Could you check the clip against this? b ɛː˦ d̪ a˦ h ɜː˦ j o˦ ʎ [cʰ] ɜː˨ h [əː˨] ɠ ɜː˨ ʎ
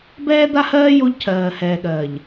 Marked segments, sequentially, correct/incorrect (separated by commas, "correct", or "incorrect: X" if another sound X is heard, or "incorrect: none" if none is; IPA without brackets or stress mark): correct, incorrect: ɛː˨